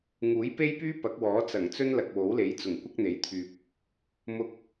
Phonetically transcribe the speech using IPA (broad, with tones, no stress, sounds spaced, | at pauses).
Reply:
ŋ uː˨˥ j p e˥ j p yː˥ p ɐ˨˥ k̚ w ɔː˨˥ t͡s ɐ˨˩ ŋ t͡s ɵ˥ n l ɐ˨ k̚ w o˨˥ w l e˨˥ j t͡s ʊ˨˩ ŋ kʷ ɐ˥ k̚ n̪ e˨˥ j t̪ʰ yː˨ p̚ | m ʊ˧ k̚